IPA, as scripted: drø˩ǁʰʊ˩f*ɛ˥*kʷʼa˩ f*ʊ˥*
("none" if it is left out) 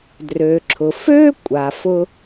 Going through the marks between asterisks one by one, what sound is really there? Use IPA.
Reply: ø˥, ʊ˥

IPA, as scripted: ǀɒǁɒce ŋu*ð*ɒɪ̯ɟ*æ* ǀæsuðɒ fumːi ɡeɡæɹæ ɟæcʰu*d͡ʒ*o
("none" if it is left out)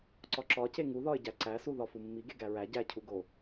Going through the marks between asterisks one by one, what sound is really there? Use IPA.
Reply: ð, æ, ɡ

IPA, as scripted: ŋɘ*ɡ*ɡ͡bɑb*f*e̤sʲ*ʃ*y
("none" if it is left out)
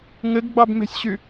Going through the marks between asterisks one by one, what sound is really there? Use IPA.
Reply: ɡ, m, ɕ

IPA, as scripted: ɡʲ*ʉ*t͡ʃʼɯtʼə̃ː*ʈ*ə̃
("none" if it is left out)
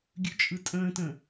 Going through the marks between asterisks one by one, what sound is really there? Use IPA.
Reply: ʉ, t

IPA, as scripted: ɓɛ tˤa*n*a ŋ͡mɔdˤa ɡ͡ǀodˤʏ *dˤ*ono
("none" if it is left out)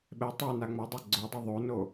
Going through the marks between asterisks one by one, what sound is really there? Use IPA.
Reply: n, ðˤ

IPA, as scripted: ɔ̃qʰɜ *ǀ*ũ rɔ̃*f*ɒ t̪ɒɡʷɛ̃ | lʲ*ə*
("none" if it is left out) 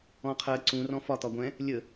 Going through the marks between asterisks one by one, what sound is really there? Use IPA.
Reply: ǀ, f, ə

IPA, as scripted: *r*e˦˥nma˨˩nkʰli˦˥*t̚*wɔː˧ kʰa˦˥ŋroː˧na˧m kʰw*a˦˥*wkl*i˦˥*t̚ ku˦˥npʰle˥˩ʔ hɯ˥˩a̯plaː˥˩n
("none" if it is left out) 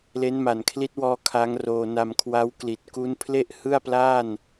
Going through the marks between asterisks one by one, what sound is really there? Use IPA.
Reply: l, t̚, a˦˥, i˨˩

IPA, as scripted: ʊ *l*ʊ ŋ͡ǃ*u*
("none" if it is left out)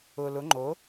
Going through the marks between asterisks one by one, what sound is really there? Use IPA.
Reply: l, o

